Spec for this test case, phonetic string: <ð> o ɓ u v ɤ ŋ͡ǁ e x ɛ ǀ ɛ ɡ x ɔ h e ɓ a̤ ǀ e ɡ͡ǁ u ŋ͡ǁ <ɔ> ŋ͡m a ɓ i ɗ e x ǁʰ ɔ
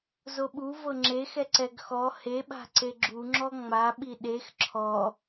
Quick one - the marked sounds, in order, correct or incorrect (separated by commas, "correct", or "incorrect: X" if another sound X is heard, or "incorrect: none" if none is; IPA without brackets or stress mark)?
incorrect: z, correct